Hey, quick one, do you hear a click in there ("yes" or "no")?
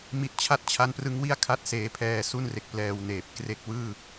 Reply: no